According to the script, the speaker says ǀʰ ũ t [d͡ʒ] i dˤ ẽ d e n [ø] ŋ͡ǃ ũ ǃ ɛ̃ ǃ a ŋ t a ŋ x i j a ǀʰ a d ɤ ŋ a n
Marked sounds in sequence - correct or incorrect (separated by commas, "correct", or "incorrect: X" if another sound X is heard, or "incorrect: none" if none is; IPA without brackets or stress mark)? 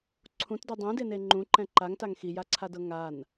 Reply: incorrect: d, incorrect: e